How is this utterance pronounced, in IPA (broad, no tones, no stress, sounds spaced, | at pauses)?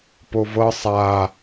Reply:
p o v ɤ sˤ a